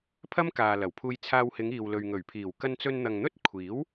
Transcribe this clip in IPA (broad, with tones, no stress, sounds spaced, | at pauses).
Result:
pʰ ɐ˥ m k aː˨ l ɐ˨˩ w pʰ uː˧ j t͡sʰ aː˧ w h ɪ˨˧ ŋ iː˨ w l ɵ˨ ɥ ŋ ɵ˨˩ ɥ pʰ iː˨˩ w k ɐ˧ n t͡s ɵ˧ n n̪ ɐ˨ ŋ n̪ ɵ˥ t̚ kʷʰ iː˨˥ w